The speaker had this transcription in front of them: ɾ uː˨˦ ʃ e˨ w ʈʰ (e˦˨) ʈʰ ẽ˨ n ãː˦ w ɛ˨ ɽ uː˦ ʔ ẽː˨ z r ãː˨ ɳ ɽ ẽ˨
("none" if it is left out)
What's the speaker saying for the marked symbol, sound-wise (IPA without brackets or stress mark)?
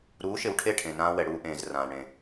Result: e˦˨